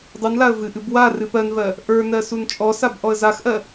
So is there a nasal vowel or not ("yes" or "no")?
no